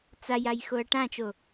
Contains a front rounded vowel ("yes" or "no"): no